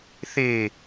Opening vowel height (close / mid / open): mid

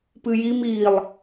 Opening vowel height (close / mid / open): close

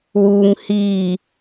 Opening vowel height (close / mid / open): close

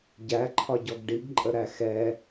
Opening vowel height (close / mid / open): open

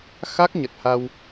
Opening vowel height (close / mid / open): open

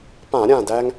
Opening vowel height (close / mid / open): open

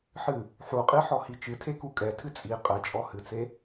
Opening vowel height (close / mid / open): close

